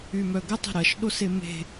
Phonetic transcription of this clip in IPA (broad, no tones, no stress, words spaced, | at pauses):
ymœɡə tˤə̤ɾɐʃ ɗoseme̤